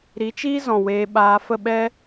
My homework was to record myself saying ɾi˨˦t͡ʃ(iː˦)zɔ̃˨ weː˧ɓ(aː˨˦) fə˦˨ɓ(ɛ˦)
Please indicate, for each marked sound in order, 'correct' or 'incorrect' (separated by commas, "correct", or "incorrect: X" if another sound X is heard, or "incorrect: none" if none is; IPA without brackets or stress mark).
correct, incorrect: aː˧, correct